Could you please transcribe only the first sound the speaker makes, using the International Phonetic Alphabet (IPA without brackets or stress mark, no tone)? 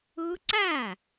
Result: ɯ